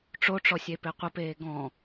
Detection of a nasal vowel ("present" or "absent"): present